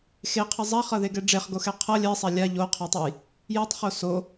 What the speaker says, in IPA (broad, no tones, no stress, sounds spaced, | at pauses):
x e qʰ ʌ zˤ a χ ʌ ð e ɡ ɛ ɖ͡ʐ e χ ɡ o x ɛ qʰ ʌ lʲ ɛ sˤ a lʲ a ʎ o qʰ ɛ tˤ o j | j ɛ tˤ χ o s o